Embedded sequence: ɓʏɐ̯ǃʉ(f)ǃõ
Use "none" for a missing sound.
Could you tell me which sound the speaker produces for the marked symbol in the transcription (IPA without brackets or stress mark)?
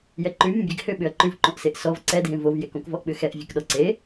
v